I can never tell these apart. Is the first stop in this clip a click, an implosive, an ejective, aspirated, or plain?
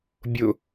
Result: plain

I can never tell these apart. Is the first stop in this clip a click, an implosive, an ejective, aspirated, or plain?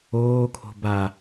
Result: aspirated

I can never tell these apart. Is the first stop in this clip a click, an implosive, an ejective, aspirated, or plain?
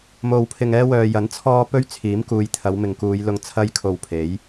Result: aspirated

